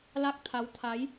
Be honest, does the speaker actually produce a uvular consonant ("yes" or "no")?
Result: no